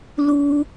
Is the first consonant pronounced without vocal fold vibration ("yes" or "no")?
no